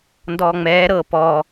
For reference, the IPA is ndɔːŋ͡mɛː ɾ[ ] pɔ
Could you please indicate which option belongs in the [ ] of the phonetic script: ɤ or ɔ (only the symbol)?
ɤ